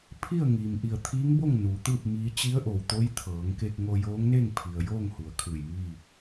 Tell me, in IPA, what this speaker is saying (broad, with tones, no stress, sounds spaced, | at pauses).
pʰ i˥˨ ə̯ ŋ iː˩ m ʔ i˧˩ ə̯ t̪ʰ iː˧˥ ŋ b o˥˨ ŋ n uː˩˧ t̪ ɯː˥˨ p̚ m iː˧˥ t͡ɕ i˧˥ ə̯ ʔ o˩ w t̪ o˧˥ j t̪ʰ ɤː˩˧ ŋ k e˧ k̚ ŋ o˧ j oː˧˥ ŋ n e˥˨ ŋ pʰ i˩ ə̯ j oː˥˨ ŋ h u˩˧ ə̯ kʰ ɯː˧˩ j m iː˥˨